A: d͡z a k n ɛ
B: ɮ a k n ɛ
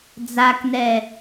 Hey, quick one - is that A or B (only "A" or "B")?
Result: A